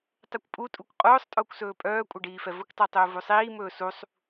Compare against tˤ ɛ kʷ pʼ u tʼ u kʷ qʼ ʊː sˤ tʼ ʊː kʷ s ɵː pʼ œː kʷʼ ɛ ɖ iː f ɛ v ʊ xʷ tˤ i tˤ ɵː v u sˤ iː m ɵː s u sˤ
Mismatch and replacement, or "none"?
xʷ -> kʷ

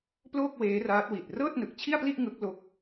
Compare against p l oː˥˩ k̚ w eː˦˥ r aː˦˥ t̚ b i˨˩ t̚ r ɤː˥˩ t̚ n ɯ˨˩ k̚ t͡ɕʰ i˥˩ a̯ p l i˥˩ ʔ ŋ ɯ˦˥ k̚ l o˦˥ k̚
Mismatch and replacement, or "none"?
b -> w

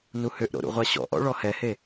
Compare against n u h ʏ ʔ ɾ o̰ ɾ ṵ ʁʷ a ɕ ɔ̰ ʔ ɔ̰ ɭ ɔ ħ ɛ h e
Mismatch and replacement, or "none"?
ħ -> h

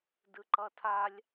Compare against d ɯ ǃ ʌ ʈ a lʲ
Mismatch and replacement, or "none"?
ʈ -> tʰ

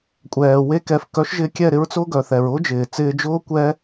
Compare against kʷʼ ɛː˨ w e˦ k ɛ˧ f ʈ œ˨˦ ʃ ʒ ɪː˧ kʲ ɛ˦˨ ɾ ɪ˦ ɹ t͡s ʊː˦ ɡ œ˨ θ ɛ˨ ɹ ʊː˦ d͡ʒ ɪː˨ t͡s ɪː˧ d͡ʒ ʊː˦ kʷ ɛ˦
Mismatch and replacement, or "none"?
ʈ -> k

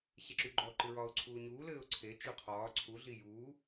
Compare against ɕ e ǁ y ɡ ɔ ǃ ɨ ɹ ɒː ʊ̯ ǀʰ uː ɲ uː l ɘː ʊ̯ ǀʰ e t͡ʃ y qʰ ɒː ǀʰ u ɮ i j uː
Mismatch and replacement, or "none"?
ɡ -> ɡ͡ǃ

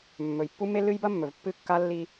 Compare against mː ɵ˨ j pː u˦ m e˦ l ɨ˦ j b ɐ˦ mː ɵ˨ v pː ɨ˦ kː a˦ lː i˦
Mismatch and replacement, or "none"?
none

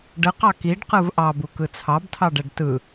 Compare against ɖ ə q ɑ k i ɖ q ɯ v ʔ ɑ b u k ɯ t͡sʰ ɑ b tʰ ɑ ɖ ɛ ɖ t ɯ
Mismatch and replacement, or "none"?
none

